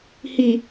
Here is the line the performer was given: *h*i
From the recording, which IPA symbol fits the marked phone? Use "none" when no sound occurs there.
h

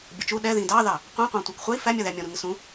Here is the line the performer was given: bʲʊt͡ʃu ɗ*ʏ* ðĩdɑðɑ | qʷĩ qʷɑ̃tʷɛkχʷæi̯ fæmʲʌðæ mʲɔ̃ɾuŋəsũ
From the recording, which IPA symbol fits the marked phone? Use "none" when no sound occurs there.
ɛ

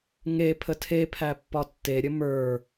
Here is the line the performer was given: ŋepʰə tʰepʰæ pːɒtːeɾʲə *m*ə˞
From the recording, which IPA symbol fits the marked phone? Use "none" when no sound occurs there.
m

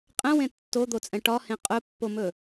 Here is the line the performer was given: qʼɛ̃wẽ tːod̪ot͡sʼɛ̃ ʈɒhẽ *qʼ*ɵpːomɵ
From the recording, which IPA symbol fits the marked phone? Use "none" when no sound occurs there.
qʼ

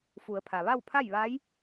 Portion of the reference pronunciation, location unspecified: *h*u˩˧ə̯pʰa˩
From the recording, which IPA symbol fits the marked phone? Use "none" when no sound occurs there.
f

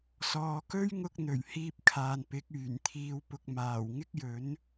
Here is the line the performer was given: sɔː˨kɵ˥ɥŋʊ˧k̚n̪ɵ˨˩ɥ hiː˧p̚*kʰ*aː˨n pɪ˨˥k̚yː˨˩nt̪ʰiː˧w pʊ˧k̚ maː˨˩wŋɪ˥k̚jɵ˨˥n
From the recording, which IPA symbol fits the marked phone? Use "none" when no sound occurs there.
kʰ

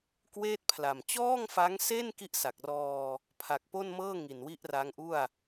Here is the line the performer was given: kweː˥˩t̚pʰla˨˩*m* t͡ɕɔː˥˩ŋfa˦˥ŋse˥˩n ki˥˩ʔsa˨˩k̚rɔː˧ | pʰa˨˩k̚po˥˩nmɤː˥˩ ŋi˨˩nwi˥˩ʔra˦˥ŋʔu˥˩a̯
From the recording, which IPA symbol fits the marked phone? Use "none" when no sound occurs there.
m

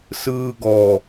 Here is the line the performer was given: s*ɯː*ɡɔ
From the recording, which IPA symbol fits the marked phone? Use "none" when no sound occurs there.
ɯː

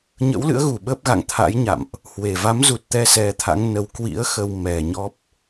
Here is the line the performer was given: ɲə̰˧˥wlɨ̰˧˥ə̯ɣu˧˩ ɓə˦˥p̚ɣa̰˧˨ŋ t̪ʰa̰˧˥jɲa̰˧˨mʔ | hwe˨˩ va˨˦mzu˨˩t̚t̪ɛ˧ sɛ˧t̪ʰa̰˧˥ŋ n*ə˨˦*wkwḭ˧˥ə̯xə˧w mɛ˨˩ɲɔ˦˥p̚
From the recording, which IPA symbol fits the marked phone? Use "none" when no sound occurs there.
ə˨˦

